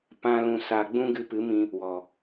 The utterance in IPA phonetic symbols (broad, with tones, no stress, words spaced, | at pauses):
pã˦ lũ˧sa˧ɡ͡bũ˦ ɡɨ˧pɨ˨˦mĩ˧ | wɔ˨